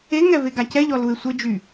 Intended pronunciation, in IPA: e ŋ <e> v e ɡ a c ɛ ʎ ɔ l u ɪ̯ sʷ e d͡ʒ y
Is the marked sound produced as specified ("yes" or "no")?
no